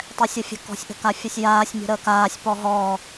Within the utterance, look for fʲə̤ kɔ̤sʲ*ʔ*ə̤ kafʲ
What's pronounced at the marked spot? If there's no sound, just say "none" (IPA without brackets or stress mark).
ʔ